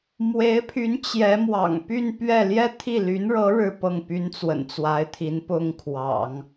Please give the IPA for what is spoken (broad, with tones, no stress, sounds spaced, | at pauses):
m w e˧˥ ɪ̯ pʰ y˧˥ n t͡ɕ j ɛ˧˥ m w ɑ̰˨˩ ŋ p y˥˧ n p ɥ ɛ˥˧ l j ɛ˥˧ t̪ʰ i˥˩ l y˧˥ n ɻ ɤ˧˥ ɻ ɻ̩˥˧ p ɤ˥˩ ŋ p y˥ n t͡s w ə̰˨˩ n t͡s w a˧˥ ɪ̯ t̪ʰ i˧˥ n p ʊ˥ ŋ kʰ w ɑ̰˨˩˦ ŋ